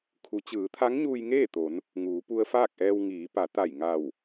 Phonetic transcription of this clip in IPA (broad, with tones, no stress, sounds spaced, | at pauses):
kʰ u˩˧ t͡ɕ ɯː˩˧ t̪ʰ a˧˥ ŋ ɲ uː˧ j ŋ eː˥˨ t̪ o˩˧ n | ŋ uː˩˧ p u˧ ə̯ f aː˥˨ k̚ ʔ ɛː˧ w ŋ iː˩˧ p a˩˧ t̪ a˧˩ j ŋ a˧˩ w